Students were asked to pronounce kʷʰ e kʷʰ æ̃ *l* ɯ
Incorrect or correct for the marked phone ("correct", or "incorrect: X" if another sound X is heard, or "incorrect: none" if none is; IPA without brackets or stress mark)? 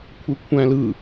correct